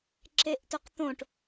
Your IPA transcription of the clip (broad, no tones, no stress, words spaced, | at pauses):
ǁeʔtoqt̪õʈ